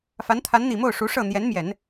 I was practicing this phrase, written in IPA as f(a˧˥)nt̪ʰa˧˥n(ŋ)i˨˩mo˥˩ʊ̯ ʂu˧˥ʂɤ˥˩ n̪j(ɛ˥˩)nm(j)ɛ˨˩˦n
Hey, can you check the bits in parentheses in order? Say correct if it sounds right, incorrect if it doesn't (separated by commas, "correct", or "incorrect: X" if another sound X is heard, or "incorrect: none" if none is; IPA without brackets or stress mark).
correct, incorrect: n̪, incorrect: ɛ˧˥, correct